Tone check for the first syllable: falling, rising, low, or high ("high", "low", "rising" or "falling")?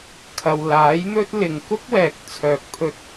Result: low